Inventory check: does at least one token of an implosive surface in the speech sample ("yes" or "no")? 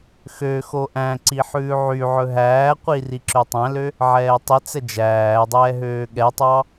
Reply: yes